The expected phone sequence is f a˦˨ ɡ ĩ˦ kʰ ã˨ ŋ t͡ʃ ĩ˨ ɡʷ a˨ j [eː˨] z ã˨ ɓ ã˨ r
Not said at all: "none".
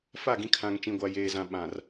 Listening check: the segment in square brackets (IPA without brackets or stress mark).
eː˨